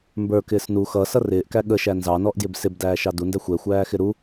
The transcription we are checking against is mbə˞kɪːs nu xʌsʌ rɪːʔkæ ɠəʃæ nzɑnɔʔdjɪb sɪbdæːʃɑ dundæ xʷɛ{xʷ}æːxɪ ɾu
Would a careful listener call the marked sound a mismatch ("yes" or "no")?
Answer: no